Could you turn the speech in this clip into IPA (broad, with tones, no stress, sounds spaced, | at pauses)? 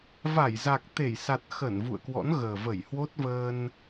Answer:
v a˧˩ j z a˨˩ k̚ t̪ e˧˩ j s a˨˩ t̚ x ə˧˩ n v ṵ˧˨ ə̯ k w ɔ̰˧˥ n ɣ əː˨˩ v ə˧˩ j h w o˦˥ t̚ v əː˧ n